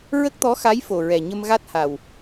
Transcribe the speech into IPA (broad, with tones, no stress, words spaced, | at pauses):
ɹə˦˥k̚t̪ɔ˧˥xa˧˥j fo˨˩ɹɛ˨˩ ɲə˧m ɣa˦˥t̚ha˨˩w